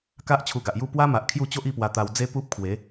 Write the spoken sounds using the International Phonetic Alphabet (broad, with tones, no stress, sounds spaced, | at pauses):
k a˦ ʔ t͡ɕʰ u˧ ɡ a˨ ʔ j u˥˧ p w a˦ m a˨ ʔ kʰ j u˥˧ t͡ɕ o˦ ʔ i˥˧ p w a˧ t̪ a˧ w d͡z e˦ p u˦ p̚ kʰ w e˨˦